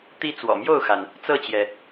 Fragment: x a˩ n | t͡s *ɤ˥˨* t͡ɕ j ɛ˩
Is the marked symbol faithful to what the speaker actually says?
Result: yes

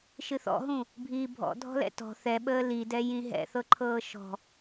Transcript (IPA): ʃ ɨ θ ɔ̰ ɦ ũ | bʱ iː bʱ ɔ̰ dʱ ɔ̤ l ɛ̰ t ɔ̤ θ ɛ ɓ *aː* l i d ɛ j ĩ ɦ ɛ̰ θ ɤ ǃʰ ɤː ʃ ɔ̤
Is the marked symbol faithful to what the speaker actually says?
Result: no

